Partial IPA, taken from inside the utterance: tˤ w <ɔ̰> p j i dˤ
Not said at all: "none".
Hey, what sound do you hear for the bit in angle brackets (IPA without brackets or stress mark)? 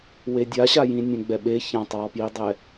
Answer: ɔ